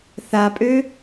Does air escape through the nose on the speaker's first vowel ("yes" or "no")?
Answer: no